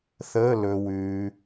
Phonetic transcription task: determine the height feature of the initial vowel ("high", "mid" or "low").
mid